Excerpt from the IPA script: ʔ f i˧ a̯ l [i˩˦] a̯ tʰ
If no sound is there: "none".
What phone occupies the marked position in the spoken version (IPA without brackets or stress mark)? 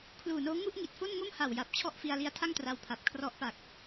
i˦˥